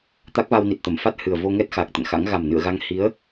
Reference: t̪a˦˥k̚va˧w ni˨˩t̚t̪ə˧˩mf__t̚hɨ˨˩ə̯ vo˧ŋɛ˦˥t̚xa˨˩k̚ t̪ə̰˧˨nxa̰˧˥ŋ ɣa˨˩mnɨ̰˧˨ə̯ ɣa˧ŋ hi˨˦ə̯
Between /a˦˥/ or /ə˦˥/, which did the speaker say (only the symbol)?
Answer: a˦˥